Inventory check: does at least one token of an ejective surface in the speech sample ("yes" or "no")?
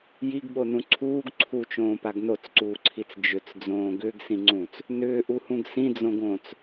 no